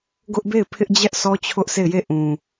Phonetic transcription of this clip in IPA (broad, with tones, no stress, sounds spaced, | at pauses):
ɡ ʊ˦ ʔ b e˦˨ ɪ̯ pʰ ɪ˦ ʔ d͡ʑ ɛ˦ ʔ s ɔ˦ t͡ɕʰ ʊ˦ ʔ sʰ e˦˨ ɪ̯ j e˦˨ ʔ ũ˨